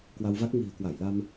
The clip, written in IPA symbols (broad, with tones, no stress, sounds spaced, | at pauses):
k w a˧ w v a˦˥ k̚ ŋ i̤˨˩ ə̯ k w a˧˩ j l a˧ m